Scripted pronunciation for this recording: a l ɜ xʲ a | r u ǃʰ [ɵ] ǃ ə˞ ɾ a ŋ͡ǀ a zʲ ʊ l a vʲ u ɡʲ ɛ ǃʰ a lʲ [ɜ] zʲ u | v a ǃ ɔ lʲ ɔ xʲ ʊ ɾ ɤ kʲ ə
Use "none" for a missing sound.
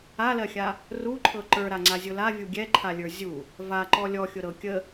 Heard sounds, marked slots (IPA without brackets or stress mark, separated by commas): ɤ, ə˞